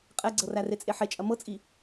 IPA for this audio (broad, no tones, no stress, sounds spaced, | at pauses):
qʼ ɛ ɡ͡ǀ ɤ r æ r e t͡sʼ e ħ e t͡ʃʼ ɐ m ɤ t͡sʼ i